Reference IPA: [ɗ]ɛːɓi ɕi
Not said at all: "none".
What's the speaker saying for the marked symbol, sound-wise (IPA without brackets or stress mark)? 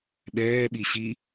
ɗ